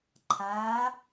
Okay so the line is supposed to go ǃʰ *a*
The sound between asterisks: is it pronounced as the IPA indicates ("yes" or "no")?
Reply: yes